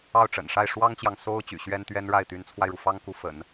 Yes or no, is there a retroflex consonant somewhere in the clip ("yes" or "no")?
yes